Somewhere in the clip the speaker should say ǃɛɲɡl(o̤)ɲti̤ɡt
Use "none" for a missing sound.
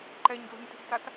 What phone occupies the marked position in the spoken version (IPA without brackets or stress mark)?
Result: o̤